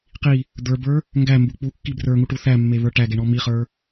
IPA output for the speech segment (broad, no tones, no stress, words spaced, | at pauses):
qi | d̪ə˞bə˞ | ŋɡæmbu k͡pukːi brə˞ŋuʈu θæmːeβə˞ ʈæɡeɳɔ miχə˞